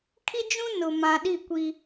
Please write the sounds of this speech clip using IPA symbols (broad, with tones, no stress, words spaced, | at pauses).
kʰi˦d͡ʒũ˦ nʊ˨mã˨ɗi˦˨kʷi˦